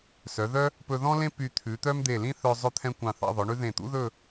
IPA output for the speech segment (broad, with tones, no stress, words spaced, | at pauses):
sœ˩˧ðœ˥ | pɵ˧ðɔ̃˥lẽ˥ py˧t̪ʰʉ˩˧t̪œ˥m d̪e˧˩lĩ˥ θœ˧ zˤɵ˧t̪ʰɛ̃˧ kʷɑ̃˧˩θɑ̰˥˧ðˤœ˩˧ɳʉ˥ ðẽ˧˩t̪ṵ˥ðɵ˥˧